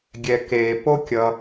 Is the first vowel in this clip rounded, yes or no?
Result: no